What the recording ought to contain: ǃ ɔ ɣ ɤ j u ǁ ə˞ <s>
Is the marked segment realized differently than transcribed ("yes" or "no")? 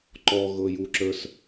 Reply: no